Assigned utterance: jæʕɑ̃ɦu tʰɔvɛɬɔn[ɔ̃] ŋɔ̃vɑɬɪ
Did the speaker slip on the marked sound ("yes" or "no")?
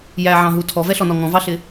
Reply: yes